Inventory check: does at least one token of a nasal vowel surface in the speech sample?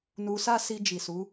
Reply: no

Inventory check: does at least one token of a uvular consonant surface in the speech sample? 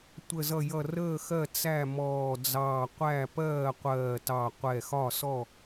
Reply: yes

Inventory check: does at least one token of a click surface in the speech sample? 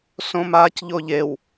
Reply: no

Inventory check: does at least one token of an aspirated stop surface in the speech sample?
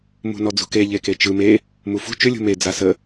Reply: no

